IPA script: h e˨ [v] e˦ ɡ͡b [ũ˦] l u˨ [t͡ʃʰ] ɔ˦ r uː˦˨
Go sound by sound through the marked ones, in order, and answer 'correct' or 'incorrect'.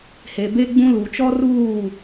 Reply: incorrect: b, correct, incorrect: t͡ʃ

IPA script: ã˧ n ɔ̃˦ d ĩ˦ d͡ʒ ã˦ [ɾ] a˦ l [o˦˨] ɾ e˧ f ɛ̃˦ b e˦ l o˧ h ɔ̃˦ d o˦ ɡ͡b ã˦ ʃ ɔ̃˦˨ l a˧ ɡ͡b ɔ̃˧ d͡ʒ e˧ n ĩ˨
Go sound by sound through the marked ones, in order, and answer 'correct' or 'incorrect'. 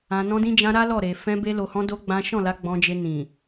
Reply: correct, incorrect: ɔ˦˨

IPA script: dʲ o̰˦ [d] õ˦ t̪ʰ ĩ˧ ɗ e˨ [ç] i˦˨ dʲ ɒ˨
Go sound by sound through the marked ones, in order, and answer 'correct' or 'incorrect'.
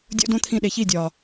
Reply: correct, correct

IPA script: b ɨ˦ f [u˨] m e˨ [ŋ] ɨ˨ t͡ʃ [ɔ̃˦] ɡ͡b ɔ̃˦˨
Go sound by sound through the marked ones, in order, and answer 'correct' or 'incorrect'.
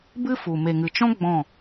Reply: correct, correct, correct

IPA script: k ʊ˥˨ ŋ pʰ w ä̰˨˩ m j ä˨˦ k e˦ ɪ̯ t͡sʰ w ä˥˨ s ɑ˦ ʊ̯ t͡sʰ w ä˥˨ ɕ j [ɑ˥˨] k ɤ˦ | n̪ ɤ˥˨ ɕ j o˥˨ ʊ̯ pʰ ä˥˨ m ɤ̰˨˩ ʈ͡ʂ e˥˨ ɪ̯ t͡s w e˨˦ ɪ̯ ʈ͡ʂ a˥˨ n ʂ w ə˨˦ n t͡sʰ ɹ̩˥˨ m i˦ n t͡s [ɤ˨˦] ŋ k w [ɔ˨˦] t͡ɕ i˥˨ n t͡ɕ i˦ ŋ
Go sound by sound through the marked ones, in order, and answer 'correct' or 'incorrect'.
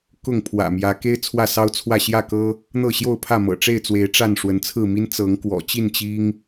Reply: incorrect: ä˥˨, correct, incorrect: ɔ̰˨˩

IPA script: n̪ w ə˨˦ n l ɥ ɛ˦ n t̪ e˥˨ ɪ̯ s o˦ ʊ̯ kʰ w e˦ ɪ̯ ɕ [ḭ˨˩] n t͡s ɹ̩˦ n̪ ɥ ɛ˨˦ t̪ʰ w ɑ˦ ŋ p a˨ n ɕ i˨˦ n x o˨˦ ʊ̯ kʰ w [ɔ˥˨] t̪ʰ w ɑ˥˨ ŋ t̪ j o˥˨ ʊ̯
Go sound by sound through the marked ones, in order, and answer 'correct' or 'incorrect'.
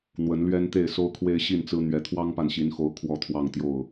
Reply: incorrect: i˥˨, correct

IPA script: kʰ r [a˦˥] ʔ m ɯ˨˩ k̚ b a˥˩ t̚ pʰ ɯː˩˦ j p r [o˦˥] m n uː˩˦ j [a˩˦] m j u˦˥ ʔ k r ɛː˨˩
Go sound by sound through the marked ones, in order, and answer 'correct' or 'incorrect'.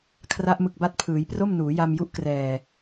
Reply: correct, incorrect: o˥˩, incorrect: a˧

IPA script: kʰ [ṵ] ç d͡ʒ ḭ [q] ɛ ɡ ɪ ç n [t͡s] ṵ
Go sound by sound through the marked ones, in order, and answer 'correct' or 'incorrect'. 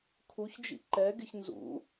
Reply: incorrect: u, incorrect: ǃ, incorrect: z

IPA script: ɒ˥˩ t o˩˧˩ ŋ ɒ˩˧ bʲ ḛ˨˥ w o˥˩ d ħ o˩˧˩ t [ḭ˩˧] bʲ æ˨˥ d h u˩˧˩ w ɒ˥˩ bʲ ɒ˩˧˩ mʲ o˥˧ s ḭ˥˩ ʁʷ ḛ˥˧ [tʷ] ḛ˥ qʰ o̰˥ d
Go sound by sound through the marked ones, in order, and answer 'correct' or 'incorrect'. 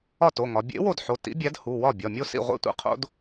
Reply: incorrect: ḭ˨˥, correct

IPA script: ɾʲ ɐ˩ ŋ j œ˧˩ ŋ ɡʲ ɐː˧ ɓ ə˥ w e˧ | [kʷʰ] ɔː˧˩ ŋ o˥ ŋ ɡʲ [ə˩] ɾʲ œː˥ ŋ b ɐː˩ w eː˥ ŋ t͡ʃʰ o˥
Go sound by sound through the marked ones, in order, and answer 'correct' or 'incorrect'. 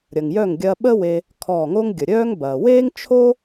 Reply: incorrect: kʰ, correct

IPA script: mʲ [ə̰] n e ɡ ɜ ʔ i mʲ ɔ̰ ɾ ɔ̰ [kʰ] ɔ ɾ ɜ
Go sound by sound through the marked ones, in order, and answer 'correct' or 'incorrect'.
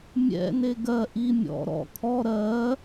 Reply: incorrect: ɛ̰, correct

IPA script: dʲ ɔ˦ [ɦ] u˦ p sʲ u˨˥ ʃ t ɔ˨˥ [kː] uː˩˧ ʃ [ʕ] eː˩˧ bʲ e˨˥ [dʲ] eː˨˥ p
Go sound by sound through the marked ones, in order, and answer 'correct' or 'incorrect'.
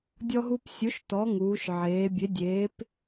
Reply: correct, incorrect: ŋ, correct, correct

